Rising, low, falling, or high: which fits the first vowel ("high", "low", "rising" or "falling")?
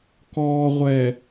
low